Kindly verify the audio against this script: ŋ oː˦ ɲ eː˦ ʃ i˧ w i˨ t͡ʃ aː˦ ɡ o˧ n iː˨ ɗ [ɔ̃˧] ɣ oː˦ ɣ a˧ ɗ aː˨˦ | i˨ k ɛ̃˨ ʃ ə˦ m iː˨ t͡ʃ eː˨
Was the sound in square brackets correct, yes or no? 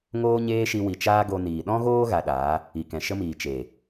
no